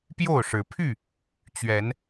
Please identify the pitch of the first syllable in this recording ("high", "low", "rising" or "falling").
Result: falling